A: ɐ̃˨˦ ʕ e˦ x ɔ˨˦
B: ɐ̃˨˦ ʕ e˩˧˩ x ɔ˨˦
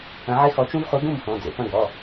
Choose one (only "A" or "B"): A